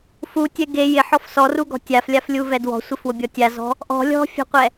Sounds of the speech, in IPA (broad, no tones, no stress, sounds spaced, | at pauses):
f u tʲ ɛ ɡ e j ɪ ħ ɔ f s ɔ r u ɡ ɔ̤ tʲ a f lʲ a f lʲ u v ɛ d w ɔ̤ sʷ ɪ f w ʊ bʲ ɔ tʲ a z ɔ̤ | ʔ ɔ̤ lʲ ɔ̤ fʲ ɔ̤ qʷ ɛ